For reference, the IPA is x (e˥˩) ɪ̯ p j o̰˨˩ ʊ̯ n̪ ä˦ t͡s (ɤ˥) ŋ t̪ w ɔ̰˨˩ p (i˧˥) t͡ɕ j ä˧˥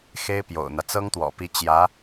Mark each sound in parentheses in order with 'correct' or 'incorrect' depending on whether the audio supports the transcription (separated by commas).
incorrect, correct, correct